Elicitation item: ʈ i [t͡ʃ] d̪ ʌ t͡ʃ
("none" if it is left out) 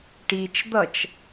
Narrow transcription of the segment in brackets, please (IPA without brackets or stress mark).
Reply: t͡ʃ